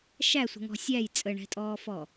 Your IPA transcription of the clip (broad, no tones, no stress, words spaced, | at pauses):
ʃæsʷə̤ŋɔ̤ sʲæj t͡sʼəɳɛ̤tʼɔːfɔ